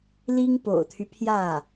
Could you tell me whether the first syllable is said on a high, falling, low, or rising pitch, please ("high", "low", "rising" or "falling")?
high